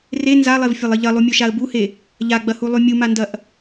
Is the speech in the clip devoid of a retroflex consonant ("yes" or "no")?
yes